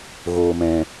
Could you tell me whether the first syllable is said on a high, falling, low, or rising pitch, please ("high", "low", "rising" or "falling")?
low